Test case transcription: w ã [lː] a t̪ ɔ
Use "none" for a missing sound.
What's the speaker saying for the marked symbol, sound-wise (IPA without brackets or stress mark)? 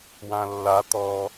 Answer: lː